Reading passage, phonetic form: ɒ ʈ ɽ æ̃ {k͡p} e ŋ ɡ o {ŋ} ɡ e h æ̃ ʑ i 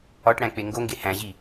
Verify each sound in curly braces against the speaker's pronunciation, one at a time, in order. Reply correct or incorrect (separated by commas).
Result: correct, correct